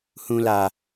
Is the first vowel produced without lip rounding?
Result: no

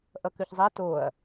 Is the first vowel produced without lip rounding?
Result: yes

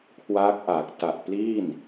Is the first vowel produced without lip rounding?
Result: yes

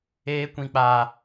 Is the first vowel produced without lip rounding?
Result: yes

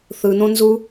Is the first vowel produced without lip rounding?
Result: yes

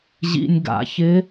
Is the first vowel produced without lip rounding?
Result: yes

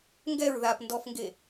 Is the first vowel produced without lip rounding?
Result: yes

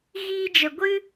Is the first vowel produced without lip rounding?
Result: yes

